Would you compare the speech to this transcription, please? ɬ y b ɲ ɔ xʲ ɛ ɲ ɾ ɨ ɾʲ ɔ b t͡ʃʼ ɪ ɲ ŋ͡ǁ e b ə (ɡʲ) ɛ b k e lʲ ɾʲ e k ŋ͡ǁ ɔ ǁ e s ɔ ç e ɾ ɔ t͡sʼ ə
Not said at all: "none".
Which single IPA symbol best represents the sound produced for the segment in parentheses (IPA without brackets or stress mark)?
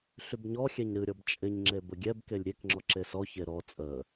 ɡʲ